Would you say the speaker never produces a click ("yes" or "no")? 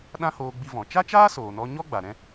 yes